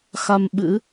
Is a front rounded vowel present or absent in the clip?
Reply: absent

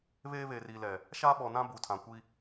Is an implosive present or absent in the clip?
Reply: present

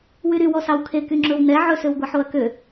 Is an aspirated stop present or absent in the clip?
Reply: present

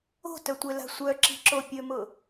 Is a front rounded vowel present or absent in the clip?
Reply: present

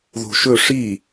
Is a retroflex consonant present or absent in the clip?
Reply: present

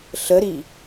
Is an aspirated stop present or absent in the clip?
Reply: absent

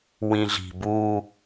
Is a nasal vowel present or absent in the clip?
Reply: present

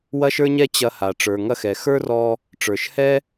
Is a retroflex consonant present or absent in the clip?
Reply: present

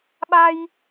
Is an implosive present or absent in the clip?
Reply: present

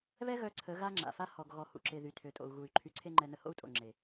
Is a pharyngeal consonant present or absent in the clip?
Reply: absent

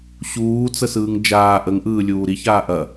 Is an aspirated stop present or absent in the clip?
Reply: absent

